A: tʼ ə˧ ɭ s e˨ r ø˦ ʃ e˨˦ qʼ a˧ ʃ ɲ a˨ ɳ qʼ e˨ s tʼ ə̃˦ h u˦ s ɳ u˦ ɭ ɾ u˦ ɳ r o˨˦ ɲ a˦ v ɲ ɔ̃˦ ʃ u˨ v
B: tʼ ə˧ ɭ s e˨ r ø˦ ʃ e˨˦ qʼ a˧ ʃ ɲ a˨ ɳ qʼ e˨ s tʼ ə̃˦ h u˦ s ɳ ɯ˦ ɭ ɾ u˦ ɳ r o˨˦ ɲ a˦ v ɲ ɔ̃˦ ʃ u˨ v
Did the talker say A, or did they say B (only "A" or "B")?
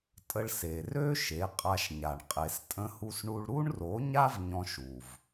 A